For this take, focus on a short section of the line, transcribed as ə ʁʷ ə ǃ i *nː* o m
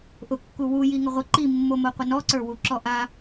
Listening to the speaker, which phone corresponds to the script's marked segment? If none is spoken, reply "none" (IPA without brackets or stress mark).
mː